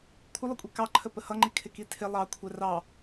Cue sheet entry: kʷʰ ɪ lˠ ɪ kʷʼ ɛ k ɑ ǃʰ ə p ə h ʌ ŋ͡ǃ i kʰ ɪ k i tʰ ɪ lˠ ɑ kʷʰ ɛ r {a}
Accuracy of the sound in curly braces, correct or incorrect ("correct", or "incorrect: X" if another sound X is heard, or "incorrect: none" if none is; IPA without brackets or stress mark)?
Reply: incorrect: ɑ